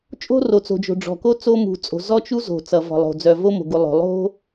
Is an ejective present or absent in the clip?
present